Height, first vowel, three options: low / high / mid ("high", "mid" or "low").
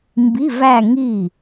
high